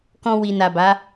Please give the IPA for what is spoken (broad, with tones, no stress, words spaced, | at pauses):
kɔ̃˧wi˨na˨ba˨˦